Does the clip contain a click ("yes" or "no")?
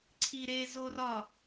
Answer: yes